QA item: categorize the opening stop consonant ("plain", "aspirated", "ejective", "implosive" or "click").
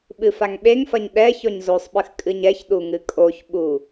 implosive